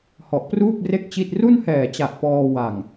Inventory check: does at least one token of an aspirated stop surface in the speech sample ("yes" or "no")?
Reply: no